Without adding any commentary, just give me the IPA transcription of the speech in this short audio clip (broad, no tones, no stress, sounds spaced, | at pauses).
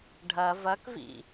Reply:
ɖʱ ɐ v ɐ k v ḭ